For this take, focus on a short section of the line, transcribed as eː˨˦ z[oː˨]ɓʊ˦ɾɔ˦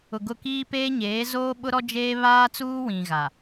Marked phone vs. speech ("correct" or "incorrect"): incorrect